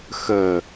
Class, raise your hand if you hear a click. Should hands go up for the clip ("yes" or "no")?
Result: no